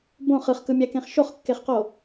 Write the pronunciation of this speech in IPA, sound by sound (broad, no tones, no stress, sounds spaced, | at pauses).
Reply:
b õ χ ɯ χ k ɯ mʲ æ k ẽ χ ʃ o χ kː e χ q o